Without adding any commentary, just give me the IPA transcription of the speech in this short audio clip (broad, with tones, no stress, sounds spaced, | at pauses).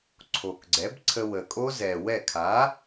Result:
ǀʰ o˨˩ k ɡ͡ǀ ɛ˩˥ b ǀʰ ə˧ w ə˨˩ kʼ o˦˥ z ɛ˨˩ w ɛ˥˩ kʰ a˩˥